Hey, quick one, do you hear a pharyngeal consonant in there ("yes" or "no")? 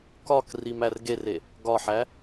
yes